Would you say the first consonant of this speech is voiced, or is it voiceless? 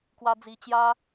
voiceless